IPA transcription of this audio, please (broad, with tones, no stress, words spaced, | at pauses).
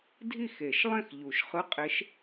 dʱi˥˩xe˨˩˦ʃlˠẽ˥˩x ʎu˨˩˦ʃ χɯ˧˥˧qʼe˧˥ʃ